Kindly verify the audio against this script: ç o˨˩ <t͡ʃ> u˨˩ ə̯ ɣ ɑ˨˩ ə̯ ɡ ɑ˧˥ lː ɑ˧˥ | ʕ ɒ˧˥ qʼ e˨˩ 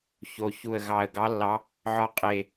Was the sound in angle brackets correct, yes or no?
no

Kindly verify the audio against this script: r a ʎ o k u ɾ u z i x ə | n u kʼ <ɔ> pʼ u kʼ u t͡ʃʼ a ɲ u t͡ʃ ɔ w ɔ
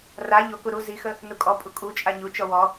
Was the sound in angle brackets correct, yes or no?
yes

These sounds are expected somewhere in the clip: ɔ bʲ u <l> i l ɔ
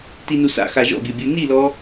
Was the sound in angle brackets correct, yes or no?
no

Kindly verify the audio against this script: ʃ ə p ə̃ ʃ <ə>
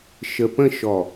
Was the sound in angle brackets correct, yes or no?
no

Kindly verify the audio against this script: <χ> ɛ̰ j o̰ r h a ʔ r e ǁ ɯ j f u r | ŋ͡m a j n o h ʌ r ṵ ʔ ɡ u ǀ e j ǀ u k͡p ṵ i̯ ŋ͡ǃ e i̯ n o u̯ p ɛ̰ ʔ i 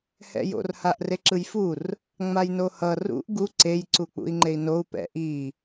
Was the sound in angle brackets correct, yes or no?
no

